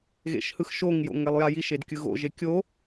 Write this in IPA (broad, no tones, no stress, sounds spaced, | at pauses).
ɣ ḛ ʃ h ɯ x ʃ o ŋ j o̰ ŋ ɛ lˠ j a j i ʃ e d kʲ ɯ ɣ o̰ ʒ e kʲ o